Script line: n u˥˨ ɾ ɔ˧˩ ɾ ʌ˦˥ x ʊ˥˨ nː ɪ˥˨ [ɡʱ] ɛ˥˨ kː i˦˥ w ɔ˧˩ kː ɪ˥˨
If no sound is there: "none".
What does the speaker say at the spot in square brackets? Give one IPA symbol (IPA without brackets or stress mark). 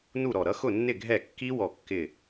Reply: ɡʱ